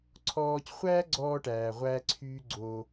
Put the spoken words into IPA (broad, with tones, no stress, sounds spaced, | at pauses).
ǀʰ ɔː˧ c χʷ æː˦ ɡ͡ǀ ɔː˧ ʈ æː˨ ʁʷ æː˦ ǀʰ yː˦ ɡ͡ǀ o˧